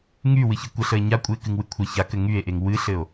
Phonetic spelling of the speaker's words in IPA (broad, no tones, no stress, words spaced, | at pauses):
ŋy wɨçɨkʷəɬəe̯ ɲa kʷʼɨe̯kɨŋwɨ kʷʰə çakɘ ŋye̯ʔeŋ wɨɬɘo̯